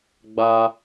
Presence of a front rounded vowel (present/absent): absent